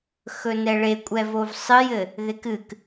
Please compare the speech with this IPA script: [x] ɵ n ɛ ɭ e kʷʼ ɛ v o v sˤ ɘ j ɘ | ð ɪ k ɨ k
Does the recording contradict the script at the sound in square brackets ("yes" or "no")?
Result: no